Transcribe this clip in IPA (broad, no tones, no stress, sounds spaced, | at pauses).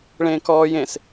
ɭ ẽː k ɔː j ẽ s